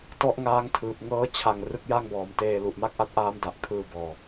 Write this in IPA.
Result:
t ɔ˦˥ ʔ ŋ aː˦˥ ŋ tʰ ɯː˨˩ p̚ ŋ ɤː˦˥ t͡ɕʰ a˨˩ ŋ r ɯ˦˥ k̚ j a˥˩ ŋ b ɔː˩˦ m t eː˧ l u˨˩ ʔ m a˥˩ k̚ ʔ a˦˥ t̚ ʔ aː˦˥ m d a˨˩ ʔ kʰ ɯː˧ b ɔː˨˩

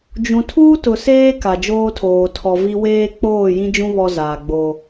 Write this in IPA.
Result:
d͡ʒ ũ˨ tʰ uː˦ t ʊ˨ s eː˦ k a˨ d͡ʒ oː˦ tʰ oː˨ tʰ ɔ˨ v i˦ w eː˦ k͡p oː˦˨ j ĩ˦ d͡ʒ ũ˦ β ɔ˦ z aː˨ ɡ͡b o˦

